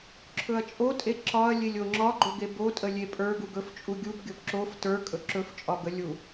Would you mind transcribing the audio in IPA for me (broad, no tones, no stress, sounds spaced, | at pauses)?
ǁʰ ɵ ɐ̯ t͡ʃʼ o tʼ e ǁ ɒ ɐ̯ lʲ e lʲ o ŋ͡ǁ ɒ ɡ͡ǃ o ɡ e b o tʼ ə lʲ e pʼ ə˞ ɡ u ɡ ɵ f t͡ʃʼ u ɡʲ u b ɡʲ o b ǁ o f t ə˞ kʼ ɵ ǁ ɵ f t͡ʃʼ ɒ ɡ ə lʲ u